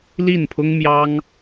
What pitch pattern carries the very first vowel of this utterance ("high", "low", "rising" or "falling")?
falling